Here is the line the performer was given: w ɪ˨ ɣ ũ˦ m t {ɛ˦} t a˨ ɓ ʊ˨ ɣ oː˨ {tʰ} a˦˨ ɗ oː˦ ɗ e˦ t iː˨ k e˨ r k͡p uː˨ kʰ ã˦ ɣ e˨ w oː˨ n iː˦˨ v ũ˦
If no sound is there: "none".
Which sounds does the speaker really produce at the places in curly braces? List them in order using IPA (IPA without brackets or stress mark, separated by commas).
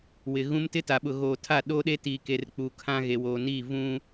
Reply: ɪ˦, tʰ